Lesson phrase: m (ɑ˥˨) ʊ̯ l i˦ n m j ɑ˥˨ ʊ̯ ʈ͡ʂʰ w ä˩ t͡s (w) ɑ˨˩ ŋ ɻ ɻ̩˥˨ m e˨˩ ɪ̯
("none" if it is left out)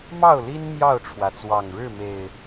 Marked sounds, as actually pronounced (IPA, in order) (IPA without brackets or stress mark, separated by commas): ɑ˥˨, w